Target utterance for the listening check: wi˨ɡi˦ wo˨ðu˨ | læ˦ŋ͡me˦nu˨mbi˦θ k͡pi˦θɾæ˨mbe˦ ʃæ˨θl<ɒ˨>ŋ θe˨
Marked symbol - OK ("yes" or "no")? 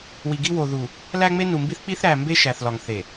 yes